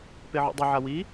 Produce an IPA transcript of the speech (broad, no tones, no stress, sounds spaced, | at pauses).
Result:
p e ʕ ṵ dˤ ɵ ʕ a w i